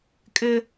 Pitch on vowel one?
high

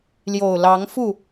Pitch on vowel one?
low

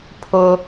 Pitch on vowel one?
high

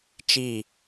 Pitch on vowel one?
falling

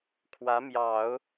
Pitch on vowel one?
rising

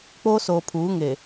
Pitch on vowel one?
high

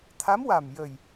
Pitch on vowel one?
rising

